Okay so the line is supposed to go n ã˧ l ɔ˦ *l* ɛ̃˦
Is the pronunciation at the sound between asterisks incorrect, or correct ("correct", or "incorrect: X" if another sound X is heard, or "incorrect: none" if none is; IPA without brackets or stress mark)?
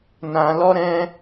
incorrect: ɾ